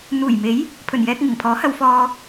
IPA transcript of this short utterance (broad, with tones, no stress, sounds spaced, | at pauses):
n̪ uː˨˩ j m e˨˥ j | pʰ ɵ˨˩ n j ɛː˧ k̚ ŋ ɪ˨˩ ŋ pʰ ɔː˨˥ h ɐ˧ w f ɔː˧